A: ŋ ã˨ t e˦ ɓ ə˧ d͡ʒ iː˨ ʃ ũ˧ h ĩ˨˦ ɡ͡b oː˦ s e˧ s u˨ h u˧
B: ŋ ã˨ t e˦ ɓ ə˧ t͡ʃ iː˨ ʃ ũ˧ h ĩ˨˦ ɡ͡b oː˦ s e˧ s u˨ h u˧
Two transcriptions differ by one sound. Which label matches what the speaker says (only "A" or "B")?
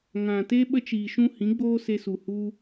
B